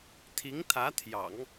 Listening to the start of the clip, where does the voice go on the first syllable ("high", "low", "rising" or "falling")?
rising